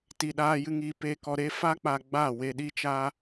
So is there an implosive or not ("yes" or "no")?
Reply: yes